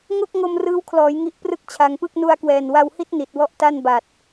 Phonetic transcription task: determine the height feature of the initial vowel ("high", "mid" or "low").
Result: mid